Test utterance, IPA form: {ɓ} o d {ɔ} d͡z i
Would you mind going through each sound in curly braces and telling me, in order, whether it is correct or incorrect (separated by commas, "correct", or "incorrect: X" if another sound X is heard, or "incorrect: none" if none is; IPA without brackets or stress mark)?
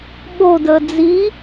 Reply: correct, incorrect: ə